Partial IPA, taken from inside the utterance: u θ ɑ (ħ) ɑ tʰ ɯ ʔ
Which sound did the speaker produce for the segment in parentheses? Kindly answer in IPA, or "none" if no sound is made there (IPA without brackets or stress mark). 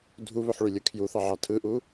ʕ